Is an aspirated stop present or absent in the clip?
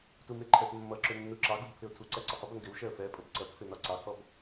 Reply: present